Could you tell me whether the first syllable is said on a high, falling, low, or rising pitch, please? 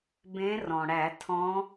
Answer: rising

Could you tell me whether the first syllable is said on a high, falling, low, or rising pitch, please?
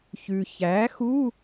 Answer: low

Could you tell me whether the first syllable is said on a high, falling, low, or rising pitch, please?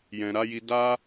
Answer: low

